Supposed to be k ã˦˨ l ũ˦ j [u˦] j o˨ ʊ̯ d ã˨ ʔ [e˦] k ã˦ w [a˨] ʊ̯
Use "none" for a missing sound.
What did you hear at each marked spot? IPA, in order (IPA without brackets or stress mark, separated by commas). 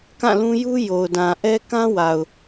u˦, ɛ˦, a˨